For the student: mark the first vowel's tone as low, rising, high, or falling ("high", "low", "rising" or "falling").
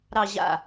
low